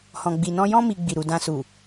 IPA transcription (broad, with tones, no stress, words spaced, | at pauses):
hɔ̃˨ɡ͡bi˨nɔ̃˧jɔ̃˦ mi˧ ɡ͡bi˨ɾu˨ dã˧su˨